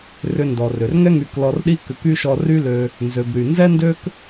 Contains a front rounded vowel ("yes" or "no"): yes